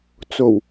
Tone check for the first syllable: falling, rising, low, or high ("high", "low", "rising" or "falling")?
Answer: low